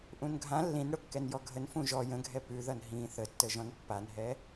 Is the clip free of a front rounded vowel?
yes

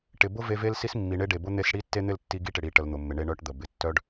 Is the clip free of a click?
yes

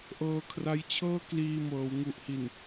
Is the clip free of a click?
yes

